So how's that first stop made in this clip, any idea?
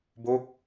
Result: plain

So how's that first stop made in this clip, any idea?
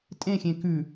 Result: ejective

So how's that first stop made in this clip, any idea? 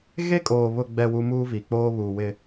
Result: ejective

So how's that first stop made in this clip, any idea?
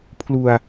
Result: aspirated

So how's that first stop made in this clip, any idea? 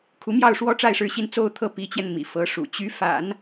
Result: aspirated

